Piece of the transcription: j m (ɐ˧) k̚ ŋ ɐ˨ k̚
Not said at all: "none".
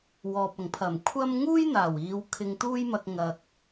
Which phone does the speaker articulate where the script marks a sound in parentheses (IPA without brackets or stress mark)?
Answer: ɐ˧